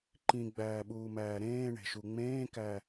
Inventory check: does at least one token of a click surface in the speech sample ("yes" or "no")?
yes